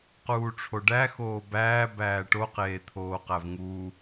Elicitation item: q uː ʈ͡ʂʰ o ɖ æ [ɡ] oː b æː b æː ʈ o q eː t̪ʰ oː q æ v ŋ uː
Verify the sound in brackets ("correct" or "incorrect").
incorrect